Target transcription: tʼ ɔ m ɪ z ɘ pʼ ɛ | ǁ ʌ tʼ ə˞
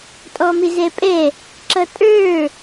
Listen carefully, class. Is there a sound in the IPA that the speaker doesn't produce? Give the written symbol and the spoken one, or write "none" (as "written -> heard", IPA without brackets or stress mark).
ɘ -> ɛ